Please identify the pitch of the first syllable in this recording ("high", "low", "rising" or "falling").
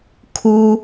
high